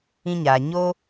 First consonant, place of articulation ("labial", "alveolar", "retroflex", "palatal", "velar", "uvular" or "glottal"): palatal